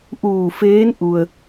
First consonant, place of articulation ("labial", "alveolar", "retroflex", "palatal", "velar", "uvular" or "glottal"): glottal